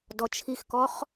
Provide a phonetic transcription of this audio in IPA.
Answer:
dɔt͡ʃʰixkɔχ

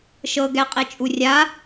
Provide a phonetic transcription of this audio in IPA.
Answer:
ʃɤɡɛqʼet͡ʃʼu rʲa

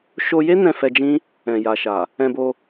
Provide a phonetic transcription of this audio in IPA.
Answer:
ʃo˧je˦ nɛ̃˦˨fɛ˧d͡ʒĩ˦ | ɛ̃˨ja˨ʃa˨ | ɛ̃˧bo˧

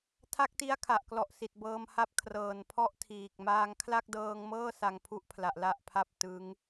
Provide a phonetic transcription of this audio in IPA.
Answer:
tʰa˥˩k̚ti˦˥a̯kʰa˨˩ʔklɔ˨˩ʔ si˨˩t̚bɤː˧mha˦˥p̚ kʰrɤː˨˩npʰɔ˥˩ʔtʰiː˨˩k̚ maː˧ŋkʰla˥˩k̚dɤː˧ŋmɤː˥˩ sa˧ŋ pʰu˥˩ʔpʰla˨˩ʔ la˥˩ʔpʰa˥˩p̚ tɯ˦˥ŋ

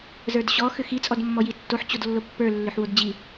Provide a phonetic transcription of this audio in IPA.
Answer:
zə˞dɕɔ xʏxi t͡sʼɔdmːɔjitːoħ t͡ɕodlːopːə˞ lːʏħwodd͡ʑi

